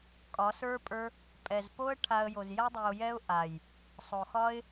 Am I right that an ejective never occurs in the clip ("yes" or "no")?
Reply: no